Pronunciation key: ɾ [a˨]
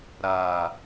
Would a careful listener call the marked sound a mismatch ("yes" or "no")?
yes